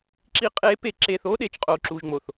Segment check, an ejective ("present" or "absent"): present